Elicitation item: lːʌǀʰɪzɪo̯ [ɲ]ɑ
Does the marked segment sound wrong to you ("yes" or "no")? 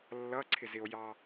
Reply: yes